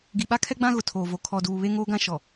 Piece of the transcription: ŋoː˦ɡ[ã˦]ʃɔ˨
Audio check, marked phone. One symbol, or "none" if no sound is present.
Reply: ã˦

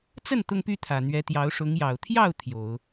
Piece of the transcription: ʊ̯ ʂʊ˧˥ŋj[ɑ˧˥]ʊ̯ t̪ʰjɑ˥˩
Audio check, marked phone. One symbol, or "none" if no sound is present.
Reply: ɑ˨˩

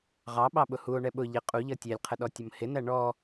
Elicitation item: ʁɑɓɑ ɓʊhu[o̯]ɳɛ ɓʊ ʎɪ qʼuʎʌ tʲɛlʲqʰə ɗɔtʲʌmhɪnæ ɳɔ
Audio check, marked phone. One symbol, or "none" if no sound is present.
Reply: o̯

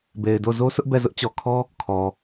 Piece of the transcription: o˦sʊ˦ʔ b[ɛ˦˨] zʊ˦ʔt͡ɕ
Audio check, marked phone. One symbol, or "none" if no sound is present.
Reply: ɛ˦˨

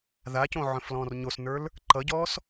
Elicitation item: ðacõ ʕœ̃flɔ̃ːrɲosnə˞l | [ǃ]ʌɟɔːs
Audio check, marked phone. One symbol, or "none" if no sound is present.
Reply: ǃ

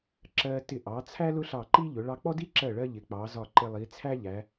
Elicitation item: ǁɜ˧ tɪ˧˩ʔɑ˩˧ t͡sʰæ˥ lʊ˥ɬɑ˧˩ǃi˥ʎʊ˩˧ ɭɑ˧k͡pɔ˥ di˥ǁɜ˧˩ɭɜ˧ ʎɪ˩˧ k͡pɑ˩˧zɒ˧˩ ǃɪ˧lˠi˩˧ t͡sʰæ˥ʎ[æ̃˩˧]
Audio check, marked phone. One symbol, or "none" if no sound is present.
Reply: æ˩˧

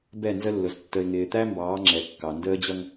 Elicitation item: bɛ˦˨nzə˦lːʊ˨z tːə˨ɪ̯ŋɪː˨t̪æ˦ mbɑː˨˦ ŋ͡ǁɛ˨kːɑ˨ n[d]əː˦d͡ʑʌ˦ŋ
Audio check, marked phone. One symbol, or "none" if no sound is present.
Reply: d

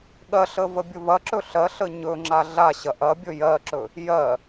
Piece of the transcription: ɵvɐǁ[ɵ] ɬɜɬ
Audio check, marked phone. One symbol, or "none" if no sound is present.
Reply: ɵ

